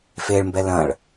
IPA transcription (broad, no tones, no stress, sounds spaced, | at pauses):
f e ɭ m b ɛ l ɐ̃ ɭ